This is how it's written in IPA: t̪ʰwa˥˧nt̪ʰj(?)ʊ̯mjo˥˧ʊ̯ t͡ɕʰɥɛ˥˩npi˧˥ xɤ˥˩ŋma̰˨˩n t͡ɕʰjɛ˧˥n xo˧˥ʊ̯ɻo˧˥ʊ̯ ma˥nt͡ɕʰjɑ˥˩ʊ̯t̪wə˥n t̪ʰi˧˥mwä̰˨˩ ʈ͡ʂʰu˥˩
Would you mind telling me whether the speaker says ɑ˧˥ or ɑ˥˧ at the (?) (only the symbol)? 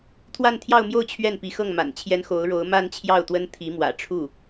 ɑ˥˧